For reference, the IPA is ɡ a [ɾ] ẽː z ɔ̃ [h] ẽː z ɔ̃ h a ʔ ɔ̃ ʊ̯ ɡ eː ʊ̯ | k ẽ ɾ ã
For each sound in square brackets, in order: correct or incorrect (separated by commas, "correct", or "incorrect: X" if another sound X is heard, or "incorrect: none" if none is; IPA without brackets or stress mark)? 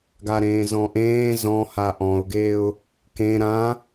correct, incorrect: ʔ